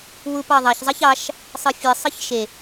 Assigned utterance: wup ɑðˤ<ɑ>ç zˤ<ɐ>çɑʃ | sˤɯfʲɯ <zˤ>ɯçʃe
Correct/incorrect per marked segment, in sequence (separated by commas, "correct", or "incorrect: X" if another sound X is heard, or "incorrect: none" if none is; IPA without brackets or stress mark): correct, incorrect: ɑ, incorrect: sˤ